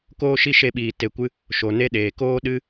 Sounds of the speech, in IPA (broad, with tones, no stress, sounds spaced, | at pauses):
k oː˦ ʃ i˦ ʃ e˧ ɓ iː˨ t e˧ kʷ ɨ˦ | ʃ o˨ n e˦ ɗ eː˨ k oː˦ ɗ ɨ˦